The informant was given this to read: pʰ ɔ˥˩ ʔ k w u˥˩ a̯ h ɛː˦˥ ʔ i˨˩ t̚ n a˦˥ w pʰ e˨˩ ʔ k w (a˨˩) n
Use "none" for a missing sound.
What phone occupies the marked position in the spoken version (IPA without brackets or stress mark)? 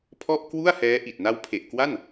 a˥˩